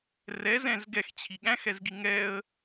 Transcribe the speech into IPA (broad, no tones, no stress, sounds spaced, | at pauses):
r ɛ z ɛ̃ z ɡ ɛ x t͡ɕʰ i ɠ æ̃ x ɛ z ɡ i ŋ ɛ ə̯